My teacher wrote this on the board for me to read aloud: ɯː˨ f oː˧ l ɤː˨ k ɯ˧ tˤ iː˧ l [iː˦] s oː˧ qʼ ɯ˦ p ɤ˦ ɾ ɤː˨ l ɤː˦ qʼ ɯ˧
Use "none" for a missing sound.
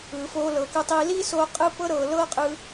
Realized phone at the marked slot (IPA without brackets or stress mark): iː˦